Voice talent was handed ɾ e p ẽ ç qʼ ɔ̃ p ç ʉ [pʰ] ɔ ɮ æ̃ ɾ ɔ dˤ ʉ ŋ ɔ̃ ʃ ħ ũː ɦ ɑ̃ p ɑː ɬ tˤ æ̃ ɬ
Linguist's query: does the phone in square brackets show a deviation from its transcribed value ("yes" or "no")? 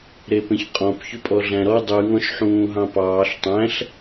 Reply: yes